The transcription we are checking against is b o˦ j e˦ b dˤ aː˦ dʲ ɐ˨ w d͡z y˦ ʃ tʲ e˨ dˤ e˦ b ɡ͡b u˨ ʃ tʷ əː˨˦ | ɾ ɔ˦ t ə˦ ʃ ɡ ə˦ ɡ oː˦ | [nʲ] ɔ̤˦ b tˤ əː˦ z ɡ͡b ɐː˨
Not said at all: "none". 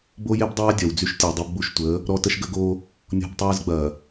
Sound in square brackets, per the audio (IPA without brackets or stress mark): nʲ